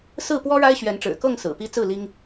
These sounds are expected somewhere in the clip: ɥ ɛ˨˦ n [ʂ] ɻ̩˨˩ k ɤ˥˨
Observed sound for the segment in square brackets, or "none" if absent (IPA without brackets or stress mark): ʈ͡ʂ